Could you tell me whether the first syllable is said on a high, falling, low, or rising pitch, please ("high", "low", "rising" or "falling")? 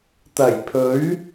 low